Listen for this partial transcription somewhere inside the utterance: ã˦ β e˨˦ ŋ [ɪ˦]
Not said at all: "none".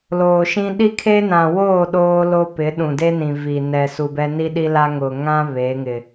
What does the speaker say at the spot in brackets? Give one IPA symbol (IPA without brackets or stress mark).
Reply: ɪ˨